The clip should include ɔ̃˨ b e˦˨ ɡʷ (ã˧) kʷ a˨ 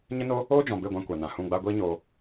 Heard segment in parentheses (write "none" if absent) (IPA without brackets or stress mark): ã˧